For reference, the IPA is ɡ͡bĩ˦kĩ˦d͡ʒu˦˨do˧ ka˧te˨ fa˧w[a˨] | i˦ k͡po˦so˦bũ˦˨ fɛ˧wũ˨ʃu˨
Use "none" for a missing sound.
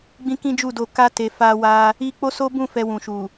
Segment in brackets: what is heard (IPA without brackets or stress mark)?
a˧